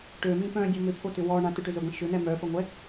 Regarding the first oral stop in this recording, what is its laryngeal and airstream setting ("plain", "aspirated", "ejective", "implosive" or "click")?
plain